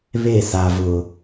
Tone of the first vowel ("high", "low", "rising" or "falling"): falling